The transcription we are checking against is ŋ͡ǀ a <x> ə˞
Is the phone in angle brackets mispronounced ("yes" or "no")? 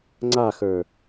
no